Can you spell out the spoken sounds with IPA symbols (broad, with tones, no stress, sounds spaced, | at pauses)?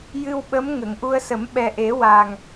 j ɨ˧ w ɓ ə˧˥ m ŋ ə˨˩˨ ŋ ʔ u˧ ə̯ s ə˨˩˦ m ɓ ɛ˨˩ ʔ e˨˩˦ w a˨˩ ŋ